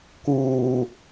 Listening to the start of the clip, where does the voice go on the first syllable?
low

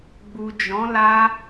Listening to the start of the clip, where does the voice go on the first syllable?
low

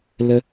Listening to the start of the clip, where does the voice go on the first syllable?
high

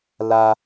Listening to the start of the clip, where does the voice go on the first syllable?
high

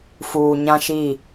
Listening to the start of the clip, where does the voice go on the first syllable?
low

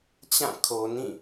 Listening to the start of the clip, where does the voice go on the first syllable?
falling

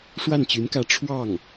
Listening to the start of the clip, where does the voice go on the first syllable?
falling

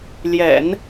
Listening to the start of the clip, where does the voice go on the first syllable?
low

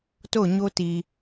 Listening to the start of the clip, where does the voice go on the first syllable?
falling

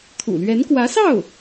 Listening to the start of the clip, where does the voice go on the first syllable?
low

